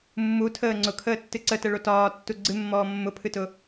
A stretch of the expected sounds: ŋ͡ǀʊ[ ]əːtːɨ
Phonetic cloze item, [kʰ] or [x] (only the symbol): kʰ